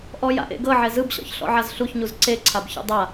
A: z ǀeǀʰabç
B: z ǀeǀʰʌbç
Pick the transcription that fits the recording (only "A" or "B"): A